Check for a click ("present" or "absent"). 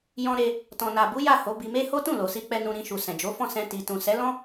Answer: absent